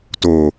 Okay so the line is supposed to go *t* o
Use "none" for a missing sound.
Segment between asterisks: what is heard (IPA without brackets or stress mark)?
t